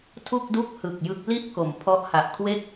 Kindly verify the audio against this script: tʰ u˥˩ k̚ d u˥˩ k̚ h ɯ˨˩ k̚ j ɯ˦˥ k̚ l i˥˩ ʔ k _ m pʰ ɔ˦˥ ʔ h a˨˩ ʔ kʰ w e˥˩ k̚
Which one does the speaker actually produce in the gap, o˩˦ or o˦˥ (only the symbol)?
o˩˦